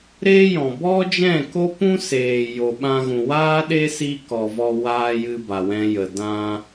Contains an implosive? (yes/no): yes